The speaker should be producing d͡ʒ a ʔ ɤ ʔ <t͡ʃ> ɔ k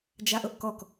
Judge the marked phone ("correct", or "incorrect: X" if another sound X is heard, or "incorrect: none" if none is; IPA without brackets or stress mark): incorrect: k